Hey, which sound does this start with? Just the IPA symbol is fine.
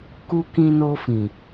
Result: k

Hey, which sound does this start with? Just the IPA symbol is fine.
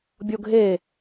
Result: bʲ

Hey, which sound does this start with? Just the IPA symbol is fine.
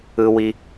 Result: ɯ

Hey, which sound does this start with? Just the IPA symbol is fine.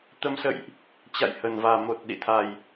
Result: t̪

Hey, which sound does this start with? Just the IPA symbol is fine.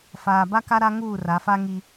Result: f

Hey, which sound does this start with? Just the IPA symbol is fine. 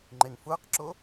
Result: ŋ͡ǃ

